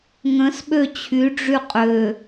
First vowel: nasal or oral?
nasal